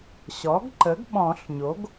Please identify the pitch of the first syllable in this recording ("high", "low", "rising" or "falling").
rising